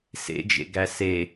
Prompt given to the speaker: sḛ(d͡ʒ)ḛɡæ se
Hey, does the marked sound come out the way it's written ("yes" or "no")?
yes